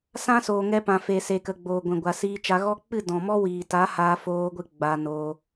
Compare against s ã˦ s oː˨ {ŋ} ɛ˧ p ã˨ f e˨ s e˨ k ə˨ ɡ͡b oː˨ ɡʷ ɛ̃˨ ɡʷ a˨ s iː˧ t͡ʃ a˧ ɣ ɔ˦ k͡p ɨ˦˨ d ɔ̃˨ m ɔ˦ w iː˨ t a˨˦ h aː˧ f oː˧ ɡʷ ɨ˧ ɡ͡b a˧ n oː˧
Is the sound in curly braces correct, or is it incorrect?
correct